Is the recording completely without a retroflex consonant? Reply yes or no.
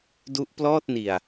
yes